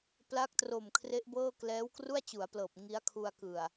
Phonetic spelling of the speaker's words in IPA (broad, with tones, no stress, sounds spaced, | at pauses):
p l a˦˥ k̚ t r o˨˩ m kʰ r e˦˥ ʔ b ɤː˥˩ k l ɛː˦˥ w k r u˥˩ a̯ t͡ɕ u˩˦ a̯ p l ɤː˨˩ p̚ ŋ i˦˥ a̯ kʰ u˧ a̯ k ɯ˨˩ a̯